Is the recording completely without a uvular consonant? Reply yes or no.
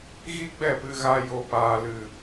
yes